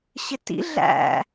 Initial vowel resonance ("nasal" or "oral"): oral